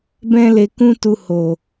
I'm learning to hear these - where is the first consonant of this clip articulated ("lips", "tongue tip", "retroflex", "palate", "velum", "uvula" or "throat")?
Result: lips